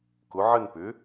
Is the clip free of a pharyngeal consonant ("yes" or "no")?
no